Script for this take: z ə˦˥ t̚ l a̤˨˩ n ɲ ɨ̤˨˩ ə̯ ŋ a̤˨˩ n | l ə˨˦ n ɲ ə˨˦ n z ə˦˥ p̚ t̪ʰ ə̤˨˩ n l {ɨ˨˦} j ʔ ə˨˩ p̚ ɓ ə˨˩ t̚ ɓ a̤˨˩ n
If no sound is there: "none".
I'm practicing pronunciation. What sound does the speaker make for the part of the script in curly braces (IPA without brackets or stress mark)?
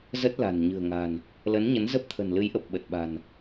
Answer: ɨ˨˦